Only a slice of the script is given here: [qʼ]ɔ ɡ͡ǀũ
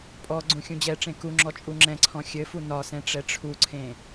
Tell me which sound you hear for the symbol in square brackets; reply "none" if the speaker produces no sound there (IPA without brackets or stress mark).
pʼ